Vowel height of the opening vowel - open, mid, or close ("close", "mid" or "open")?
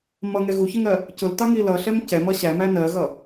mid